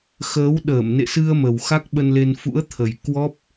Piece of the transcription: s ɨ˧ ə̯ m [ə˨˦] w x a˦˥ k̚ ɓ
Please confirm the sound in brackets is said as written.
no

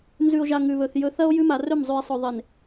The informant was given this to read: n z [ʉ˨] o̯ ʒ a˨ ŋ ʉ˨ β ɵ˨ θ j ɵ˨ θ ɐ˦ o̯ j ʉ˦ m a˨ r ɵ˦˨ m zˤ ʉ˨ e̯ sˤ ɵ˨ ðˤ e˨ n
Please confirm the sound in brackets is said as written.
yes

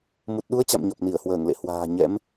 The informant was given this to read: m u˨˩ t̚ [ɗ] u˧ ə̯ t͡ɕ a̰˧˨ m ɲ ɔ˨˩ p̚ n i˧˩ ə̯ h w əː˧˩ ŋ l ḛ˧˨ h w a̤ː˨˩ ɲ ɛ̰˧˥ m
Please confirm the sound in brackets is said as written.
yes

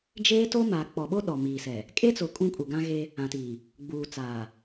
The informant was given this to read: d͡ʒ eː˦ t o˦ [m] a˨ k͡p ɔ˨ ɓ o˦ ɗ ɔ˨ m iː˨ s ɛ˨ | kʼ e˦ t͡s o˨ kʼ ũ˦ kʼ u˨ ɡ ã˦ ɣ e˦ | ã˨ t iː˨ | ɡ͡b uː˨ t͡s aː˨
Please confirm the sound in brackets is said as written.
yes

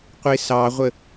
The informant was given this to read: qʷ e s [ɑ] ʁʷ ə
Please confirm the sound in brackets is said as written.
yes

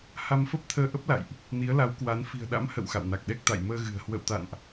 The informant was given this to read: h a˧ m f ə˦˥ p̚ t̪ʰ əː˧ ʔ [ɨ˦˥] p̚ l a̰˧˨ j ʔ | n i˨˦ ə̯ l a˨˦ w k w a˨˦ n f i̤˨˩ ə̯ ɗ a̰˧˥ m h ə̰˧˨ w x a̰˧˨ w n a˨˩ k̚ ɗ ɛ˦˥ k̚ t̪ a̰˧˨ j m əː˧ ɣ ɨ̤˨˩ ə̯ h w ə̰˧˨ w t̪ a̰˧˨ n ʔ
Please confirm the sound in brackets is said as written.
no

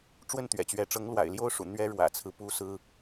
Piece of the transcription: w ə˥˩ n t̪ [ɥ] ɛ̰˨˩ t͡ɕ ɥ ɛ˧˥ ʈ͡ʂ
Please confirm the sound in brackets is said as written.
yes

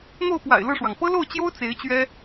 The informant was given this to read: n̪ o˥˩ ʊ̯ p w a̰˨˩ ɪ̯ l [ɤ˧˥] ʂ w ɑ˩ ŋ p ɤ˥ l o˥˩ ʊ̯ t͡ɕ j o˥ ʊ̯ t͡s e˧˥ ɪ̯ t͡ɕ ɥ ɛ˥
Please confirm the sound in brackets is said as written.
no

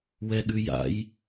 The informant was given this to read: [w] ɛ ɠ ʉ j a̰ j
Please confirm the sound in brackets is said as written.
yes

